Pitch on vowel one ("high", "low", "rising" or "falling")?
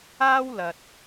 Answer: high